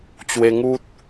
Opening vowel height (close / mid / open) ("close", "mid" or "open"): mid